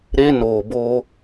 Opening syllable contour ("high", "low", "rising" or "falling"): high